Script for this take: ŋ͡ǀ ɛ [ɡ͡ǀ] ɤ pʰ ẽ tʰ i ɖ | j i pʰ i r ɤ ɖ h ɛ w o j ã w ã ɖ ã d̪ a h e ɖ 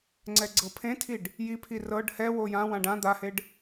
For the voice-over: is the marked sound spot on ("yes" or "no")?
yes